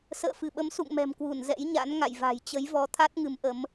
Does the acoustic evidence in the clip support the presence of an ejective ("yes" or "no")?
no